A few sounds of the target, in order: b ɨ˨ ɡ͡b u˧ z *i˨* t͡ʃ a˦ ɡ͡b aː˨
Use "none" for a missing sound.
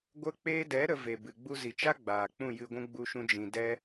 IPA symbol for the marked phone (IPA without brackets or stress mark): i˨